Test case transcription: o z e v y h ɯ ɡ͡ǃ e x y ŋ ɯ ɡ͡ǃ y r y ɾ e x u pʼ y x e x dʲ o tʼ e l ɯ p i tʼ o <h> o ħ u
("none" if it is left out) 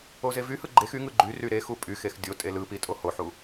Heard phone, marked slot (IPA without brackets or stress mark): h